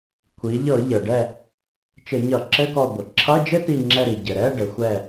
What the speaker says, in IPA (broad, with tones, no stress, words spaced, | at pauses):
kʷʰi˩˧ʎɤ˧˩˧ ʎɤ˩ɖɛ˧˩ | t͡ʃɘ˧˩˧ɲʌ˧˩˧ǁɘ˧˥˧kɔ˧˩ ɡʷə˩ǁʰʌ˧˥˧ d͡ʒɘ˥ti˧˩ŋ͡ǁɛ˧˩ ɾi˩ ɟɘ˩ ɾɛ˧˥˧ɖɘ˩˧xʷɛ˧˩